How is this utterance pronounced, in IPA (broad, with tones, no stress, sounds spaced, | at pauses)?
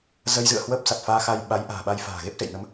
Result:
z ə˧ j z ɨ̰˧˨ ə̯ h w əː˦˥ p̚ s a˨˩ t̚ f aː˧ x a˧ j ɓ a˨˦ j ʔ a̤ː˨˩ ɓ a˧ j f a̤ː˨˩ ɣ e˦˥ p̚ s ḛ˧˨ j n ə˨˦ m